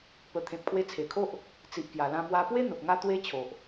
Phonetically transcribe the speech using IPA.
p ə˨˩ t̪ʰ ẽ˨ p̚ kʰ w e˧ t͡sʰ e˨˩ kʰ o˦ ʔ | t͡s i˨ ʔ k j a˨˩ l ã˧ m w a˧ p w e˦ n̪ ə˨ p̚ ŋ a˦ t̪ w e˦ t͡ɕʰ o˨ ʔ

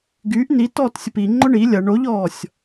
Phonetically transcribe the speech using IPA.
ɡ yː ʔ n i t ɔː t sʲ ʊ p i ŋ͡ǃ ʊ ɳ i lʲ ɐ ɳ o ʎ ɔː sʲ

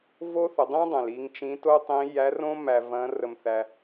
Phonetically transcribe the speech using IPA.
v o˥ θ ə˩˧ dˤ ĩ˥ dˤ ɛ̃˩ l i˧ ŋ t͡ʃ ĩ˧˥ t o˥ tˤ ĩ˧˥ j æ˧˥ r õ˥ m æ˧ v ɐ̃˧˥ r ə˧ m θ æ˧

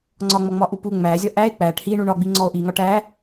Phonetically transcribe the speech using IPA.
ŋ͡ǀ ɒ ŋ͡m ɔ ŋ͡m ɒ ʔ u p u ŋ͡m æ zʲ ɒ ʔ æ e̯ k͡p æ ʈ h i ɳ u ɳ ɒ ɡ͡b i ŋ͡ǀ ɔ o̯ ʔ i ŋ ɒ ʈ æ

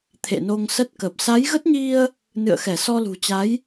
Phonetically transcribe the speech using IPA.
t̪ʰ ḛ˧˨ n o˧ ŋ s ə˦˥ t̚ k ə˨˩ p̚ s a˨˦ j ɣ ə˦˥ t̚ ɲ i˧ ə̯ | n ɨ̰˧˨ ə̯ x ɛ˧˩ s ɔ˧ l ṳ˨˩ t͡ɕ a˨˦ j

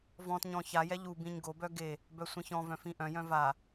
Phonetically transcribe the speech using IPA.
v ɔ̃ t ɲ ɔ̃ ç a j ɛ ʎ u b ĩ ɲ ɡ o b œ ɡ e | b œ sʷ ĩ ç ɔ̃ v œ̃ f ĩ ʔ œ̃ j œ̃ v a

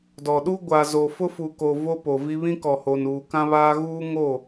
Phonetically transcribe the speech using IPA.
d ɔ˨ ɗ u˦ ɡʷ a˨ z o˨ f ʊ˦ f u˨ k o˨ v o˦ p o˨ v i˦ β ĩ˦ k ɔ˨ h o˨ n uː˨ k ã˦ β aː˦ ɣ uː˦ ŋ o˦˨

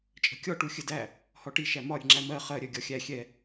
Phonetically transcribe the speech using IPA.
t͡ʃʼ ə̤ kʲ ɔ ʈ u xʲ ə d æ | h ɔ ʈ i ʃ æ m ɒ ɾʲ ə̤ ŋ͡ǁ æ m ɜ χ ɜ ɾʲ ɜ ɡʲ ɒ xʲ æ xʲ ɛ

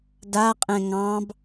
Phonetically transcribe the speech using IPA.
d a qʼ ɛ̃ ŋ ɑ̃ b

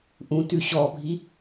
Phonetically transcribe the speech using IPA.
ʔ ũ t ʉ ɕ ɔ bʱ i

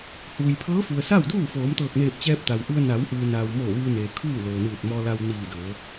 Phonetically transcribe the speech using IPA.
h uː˩ j pʰ ɤː˧˥ f u˩ ə̯ s a˥˨ w d uː˥˨ f oː˩˧ m t̪ ɤː˧˩ k̚ n eː˧˩ p̚ t͡ɕ ɛː˧ p̚ t̪ a˩ w ʔ u˧ ə̯ n a˩˧ w ʔ ɯː˩ n a˩ w m o˧˩ ʋ ɯː˧ n eː˩ kʰ uː˥˨ l oː˩ n ɯː˧˩ t̚ m ɔː˧ l a˧ w n iː˧˩ d ɤː˩˧

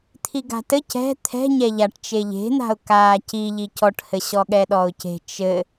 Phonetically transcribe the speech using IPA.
t̪ʰ i ɡ a̤ t ɘ c ɛ̤ t̪ʰ ɛ̤ ɲ ɛ ʎ a ʈ t͡ʃ e ʎ e̤ n̪ a̤ ʊ̯ k aː c i ʎ i c ɔ ʈ h ɘ ɕ ɔ ɠ ɛ ɗ ɔ ʊ̯ c e̤ t͡ʃ ɘ

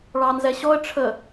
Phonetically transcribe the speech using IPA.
ɭ ɑ n z ɛ ɕ ɔ ə̯ ʈ͡ʂʰ ə

